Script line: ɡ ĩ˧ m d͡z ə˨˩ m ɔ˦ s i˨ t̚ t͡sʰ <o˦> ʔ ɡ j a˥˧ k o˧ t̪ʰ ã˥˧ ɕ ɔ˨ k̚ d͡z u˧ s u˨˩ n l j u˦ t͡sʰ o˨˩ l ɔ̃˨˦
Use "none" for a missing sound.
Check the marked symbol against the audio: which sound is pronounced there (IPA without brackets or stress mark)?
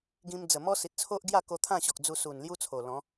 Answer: o˦